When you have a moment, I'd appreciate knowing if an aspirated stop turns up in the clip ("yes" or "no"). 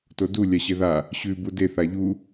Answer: no